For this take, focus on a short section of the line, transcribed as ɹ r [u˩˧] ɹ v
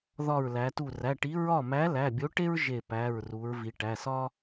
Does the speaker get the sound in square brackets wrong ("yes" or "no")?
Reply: no